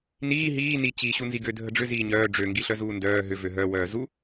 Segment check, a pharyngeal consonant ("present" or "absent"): absent